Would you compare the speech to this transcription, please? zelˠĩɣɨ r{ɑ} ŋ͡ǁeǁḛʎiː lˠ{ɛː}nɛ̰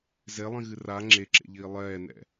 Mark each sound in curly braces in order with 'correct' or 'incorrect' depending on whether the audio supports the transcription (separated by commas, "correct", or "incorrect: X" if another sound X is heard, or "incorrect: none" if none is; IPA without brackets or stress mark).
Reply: incorrect: a, correct